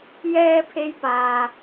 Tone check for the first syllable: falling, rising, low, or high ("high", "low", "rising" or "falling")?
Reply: high